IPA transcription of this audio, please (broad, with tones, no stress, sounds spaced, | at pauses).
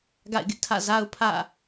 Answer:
ɡ a̰˦˨ ɪ̯ ɡ ɪ˦ ʔ tʰ ä̰˦˨ z a˦ ʊ̯ pʰ ä̰˦˨